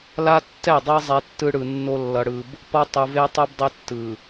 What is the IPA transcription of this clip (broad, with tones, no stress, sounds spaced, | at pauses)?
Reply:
l a˦ tː ɛ˦˨ dˤ e˦ zˤ ɛ˦ tː ɯ˦ ɽ ɯ˨ nː o˦ lː ʌ˨ ɽ ɯ˨ b | p ʌ˦ tˤ u˨ v e˦ tˤ ɛ˦ b dˤ e˦ tː ɯ˨